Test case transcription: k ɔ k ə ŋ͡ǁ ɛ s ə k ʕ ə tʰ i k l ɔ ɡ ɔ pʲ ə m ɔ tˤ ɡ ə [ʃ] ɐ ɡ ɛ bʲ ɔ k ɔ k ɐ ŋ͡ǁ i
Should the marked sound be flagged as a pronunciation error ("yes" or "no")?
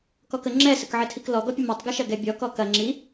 no